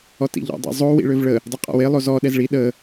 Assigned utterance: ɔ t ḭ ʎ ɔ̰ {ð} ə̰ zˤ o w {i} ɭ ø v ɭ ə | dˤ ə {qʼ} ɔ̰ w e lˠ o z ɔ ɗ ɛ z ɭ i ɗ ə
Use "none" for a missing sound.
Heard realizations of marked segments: dˤ, ḭ, qʼ

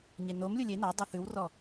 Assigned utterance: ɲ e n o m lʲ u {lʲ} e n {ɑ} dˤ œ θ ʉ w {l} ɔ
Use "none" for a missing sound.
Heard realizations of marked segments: lʲ, ɑ, r

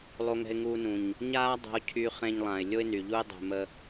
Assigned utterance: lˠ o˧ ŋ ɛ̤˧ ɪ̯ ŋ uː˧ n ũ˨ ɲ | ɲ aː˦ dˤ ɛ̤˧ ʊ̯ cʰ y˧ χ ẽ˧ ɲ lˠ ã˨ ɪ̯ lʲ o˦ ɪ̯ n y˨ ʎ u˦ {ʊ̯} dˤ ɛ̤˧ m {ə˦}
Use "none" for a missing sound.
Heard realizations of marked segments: ɪ̯, ə˦

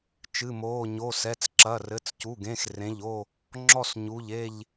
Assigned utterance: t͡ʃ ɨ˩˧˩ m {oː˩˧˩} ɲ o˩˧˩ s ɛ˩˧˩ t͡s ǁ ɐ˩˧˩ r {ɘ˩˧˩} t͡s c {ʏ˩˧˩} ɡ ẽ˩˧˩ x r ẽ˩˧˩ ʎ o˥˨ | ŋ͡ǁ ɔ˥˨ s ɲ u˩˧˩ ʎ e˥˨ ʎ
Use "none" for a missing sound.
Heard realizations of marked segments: oː˩˧˩, ɘ˩˧˩, u˩˧˩

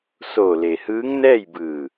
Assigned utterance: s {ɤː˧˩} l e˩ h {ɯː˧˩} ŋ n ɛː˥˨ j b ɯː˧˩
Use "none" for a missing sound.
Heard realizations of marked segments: oː˧˩, ɯː˧˥

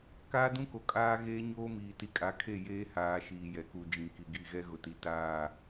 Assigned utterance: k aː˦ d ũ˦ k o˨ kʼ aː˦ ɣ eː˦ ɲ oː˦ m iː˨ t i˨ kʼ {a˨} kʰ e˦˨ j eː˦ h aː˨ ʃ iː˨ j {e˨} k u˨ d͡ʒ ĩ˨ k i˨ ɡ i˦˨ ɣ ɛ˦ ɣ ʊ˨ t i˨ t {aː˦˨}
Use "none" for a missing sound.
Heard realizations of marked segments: a˨, ɛ˨, aː˦˨

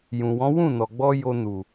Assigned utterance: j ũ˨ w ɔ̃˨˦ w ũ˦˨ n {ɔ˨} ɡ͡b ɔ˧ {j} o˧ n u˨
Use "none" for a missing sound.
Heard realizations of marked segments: ɔ˨, j

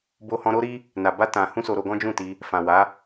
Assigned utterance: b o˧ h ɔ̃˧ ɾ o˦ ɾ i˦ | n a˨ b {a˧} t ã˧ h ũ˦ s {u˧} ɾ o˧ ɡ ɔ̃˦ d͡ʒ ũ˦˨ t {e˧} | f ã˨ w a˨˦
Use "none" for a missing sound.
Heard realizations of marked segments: a˧, o˧, i˧

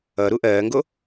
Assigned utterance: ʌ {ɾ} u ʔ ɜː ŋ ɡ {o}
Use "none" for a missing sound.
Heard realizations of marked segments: ɾ, o

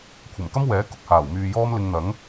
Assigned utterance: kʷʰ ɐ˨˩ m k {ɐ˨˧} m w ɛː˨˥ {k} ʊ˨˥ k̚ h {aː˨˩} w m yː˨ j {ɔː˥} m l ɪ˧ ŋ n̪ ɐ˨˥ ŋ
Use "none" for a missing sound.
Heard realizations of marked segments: ɐ˥, k, aː˨˩, ɔː˥

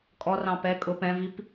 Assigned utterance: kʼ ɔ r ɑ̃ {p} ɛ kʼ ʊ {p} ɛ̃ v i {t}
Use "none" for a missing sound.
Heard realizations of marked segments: p, p, p

